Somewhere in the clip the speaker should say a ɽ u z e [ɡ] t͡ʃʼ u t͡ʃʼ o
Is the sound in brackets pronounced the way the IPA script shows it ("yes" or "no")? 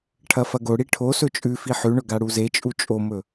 no